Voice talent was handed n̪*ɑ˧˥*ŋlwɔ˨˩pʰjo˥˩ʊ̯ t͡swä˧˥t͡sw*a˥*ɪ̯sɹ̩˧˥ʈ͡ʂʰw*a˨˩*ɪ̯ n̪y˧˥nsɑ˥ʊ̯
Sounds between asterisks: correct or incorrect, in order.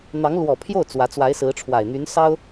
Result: correct, incorrect: a˧˥, correct

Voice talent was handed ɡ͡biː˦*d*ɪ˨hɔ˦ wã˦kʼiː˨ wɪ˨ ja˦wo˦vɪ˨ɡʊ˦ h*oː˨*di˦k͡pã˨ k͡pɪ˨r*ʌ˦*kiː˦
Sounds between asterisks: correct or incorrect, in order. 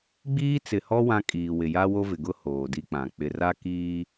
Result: incorrect: t͡s, correct, incorrect: a˦

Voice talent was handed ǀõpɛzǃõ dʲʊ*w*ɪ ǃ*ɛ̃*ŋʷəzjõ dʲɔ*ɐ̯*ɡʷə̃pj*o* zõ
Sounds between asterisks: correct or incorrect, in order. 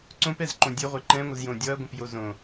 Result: incorrect: ʁʷ, correct, correct, correct

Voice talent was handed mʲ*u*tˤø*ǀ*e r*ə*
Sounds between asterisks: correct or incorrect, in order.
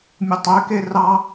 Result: incorrect: o, incorrect: k, incorrect: ɑ

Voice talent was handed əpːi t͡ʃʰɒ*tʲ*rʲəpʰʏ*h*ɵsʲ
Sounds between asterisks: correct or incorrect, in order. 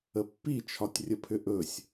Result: correct, incorrect: ʔ

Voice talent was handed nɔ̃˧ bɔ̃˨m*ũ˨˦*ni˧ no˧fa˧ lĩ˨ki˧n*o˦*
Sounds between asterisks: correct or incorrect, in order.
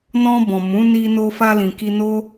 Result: correct, correct

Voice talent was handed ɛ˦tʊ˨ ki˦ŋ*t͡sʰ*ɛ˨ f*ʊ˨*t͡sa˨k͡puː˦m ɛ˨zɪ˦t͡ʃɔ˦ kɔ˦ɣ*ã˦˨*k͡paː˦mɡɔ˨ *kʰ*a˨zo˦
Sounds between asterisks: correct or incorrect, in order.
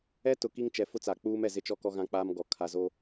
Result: incorrect: t͡ʃ, incorrect: ʊ˦, incorrect: ã˦, correct

